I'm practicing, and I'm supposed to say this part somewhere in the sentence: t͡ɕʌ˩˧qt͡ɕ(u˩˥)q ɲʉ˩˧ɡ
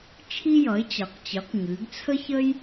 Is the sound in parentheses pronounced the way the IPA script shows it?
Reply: no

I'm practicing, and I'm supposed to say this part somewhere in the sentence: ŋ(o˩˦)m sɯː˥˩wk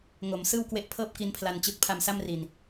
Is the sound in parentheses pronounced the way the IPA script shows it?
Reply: yes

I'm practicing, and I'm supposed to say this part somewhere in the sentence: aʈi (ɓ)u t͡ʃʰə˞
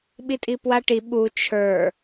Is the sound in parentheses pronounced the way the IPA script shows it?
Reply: yes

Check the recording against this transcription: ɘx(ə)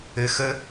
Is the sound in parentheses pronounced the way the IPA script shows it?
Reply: yes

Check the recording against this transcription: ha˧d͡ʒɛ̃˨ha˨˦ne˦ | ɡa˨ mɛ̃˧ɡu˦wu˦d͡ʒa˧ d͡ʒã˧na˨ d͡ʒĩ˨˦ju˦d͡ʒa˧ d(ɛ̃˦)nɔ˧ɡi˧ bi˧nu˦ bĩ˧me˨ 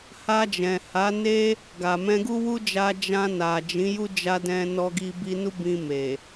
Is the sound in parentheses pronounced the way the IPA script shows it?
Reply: no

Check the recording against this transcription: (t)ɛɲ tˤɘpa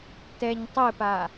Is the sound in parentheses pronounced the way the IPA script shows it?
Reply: yes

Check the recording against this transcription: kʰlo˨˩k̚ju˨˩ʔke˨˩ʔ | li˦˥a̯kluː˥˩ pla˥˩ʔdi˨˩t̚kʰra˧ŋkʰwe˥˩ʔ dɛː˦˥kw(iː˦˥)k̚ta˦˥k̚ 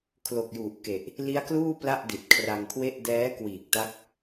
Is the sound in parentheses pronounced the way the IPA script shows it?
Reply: no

